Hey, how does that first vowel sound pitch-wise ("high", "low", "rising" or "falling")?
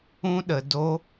high